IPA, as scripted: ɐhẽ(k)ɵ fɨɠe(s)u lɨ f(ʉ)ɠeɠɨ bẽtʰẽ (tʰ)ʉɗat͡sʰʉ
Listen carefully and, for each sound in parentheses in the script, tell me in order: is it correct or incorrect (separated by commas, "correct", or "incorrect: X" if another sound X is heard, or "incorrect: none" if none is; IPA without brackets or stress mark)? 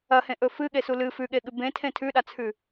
incorrect: ʔ, correct, correct, correct